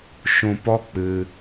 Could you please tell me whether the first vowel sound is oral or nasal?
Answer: nasal